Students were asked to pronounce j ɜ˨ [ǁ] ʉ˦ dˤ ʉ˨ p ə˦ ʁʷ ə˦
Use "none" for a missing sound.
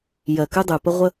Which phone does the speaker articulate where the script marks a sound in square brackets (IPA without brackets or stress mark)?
k